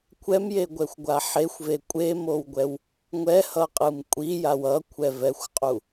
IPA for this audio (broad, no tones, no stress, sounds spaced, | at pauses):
kʷʰ ɛ m j e ɡʷ ɛ xʷ ɡʷ a ħ e xʷ v e kʷʼ e m o w ɡʷ ɛ w | ŋʷ ɛ h ʌ qʼ ɯ m kʷʼ i j a w ʌ kʷʰ ɛ v ɛ xʷ qʼ u